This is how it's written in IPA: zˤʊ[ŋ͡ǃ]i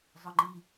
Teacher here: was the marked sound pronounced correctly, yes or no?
yes